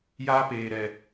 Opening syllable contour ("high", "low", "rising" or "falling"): high